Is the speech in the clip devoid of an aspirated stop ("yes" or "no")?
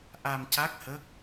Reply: yes